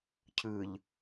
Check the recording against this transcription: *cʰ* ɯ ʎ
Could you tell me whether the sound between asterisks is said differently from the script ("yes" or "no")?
no